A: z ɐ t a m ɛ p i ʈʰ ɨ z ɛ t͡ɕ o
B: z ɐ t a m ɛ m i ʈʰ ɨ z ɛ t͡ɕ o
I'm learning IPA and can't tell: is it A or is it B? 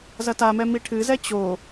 B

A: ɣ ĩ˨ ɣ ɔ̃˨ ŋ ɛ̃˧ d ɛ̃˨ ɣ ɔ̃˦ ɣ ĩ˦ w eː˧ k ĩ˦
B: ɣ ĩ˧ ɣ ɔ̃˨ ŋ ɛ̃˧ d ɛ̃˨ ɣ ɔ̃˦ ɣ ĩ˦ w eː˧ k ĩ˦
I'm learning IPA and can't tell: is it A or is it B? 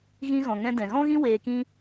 B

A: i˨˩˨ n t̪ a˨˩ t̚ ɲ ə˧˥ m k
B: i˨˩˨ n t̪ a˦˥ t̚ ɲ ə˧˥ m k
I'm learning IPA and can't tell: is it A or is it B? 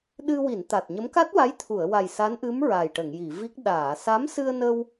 A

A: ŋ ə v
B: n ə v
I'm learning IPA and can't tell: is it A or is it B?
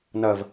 B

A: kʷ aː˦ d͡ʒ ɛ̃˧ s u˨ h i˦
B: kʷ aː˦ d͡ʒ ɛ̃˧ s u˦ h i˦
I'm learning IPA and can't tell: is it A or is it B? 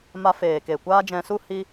B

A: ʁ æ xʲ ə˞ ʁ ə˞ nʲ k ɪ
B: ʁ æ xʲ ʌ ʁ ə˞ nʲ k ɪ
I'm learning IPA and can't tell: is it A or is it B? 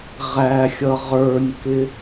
B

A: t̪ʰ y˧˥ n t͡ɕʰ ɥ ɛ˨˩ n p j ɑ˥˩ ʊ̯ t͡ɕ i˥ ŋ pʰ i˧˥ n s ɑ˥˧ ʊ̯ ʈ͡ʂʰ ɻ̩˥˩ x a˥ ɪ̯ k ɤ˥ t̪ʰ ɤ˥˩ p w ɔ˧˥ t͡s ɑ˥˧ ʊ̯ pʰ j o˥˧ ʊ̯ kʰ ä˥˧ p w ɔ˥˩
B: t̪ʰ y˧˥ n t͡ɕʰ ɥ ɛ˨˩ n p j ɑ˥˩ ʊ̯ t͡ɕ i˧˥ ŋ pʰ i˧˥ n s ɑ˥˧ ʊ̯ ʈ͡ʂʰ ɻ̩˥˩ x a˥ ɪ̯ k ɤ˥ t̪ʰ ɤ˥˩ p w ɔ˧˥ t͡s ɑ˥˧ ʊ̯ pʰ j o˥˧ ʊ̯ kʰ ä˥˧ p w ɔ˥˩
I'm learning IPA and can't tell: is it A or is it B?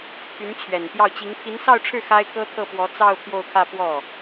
B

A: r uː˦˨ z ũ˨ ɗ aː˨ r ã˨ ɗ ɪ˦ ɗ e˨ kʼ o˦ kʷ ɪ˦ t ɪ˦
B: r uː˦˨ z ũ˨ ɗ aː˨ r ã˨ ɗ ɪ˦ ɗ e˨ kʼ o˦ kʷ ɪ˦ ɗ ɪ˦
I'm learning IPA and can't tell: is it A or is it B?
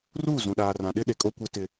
A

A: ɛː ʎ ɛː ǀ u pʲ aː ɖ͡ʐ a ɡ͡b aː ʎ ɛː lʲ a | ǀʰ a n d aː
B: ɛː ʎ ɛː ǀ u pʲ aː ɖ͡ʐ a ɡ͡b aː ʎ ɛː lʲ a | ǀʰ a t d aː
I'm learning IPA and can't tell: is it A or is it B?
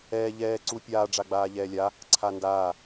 A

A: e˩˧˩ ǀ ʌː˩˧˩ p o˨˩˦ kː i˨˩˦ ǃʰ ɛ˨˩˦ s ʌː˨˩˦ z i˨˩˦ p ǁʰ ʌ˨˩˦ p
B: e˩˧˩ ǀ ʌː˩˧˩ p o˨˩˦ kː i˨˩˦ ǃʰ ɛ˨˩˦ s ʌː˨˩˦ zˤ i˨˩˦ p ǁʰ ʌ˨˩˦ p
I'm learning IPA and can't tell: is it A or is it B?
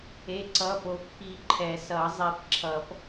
B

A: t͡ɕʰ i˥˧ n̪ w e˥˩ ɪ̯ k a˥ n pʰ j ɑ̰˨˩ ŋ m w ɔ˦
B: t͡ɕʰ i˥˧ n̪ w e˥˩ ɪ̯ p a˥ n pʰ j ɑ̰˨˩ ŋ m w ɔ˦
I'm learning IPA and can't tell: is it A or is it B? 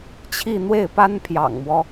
B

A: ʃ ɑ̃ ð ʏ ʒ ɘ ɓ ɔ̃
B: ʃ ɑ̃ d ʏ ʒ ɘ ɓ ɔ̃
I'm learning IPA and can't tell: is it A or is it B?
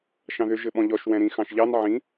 A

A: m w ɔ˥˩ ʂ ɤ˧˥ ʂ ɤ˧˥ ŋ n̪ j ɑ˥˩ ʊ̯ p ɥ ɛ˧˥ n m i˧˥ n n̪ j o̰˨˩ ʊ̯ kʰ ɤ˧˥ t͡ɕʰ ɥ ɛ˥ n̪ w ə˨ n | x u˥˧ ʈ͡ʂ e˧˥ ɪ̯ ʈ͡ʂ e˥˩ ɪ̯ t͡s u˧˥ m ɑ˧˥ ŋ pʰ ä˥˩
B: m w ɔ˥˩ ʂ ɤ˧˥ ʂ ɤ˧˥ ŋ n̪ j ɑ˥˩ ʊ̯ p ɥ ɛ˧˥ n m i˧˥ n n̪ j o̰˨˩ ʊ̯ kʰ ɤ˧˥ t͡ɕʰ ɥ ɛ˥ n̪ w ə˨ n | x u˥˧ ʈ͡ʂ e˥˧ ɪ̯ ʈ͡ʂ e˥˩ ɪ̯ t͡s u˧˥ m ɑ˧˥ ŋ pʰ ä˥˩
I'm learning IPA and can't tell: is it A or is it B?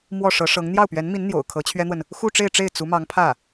B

